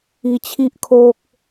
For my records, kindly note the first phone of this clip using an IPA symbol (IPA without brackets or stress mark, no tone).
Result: i